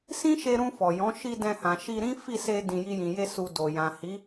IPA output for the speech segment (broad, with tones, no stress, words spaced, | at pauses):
sĩ˦ʃe˧ɾũ˧ fɔ˨jɔ̃˨˦ ʃi˧ dɛ̃˧hã˨ ʃi˧ɾĩ˦ fi˦˨se˧ dĩ˨ ji˧jĩ˨je˧ su˨ do˨ jã˨hi˨˦